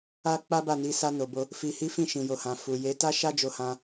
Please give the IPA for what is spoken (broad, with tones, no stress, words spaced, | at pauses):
a˦ k͡pa˦ba˦˨ni˧ sa˧no˨bo˧ | fi˧ hi˦ fĩ˦˨ʃĩ˨jo˨hã˨ fu˨je˨˦ ta˦ʃa˦ d͡ʒo˧hã˧